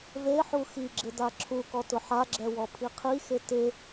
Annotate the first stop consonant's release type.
click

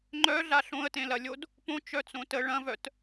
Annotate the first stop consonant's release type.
click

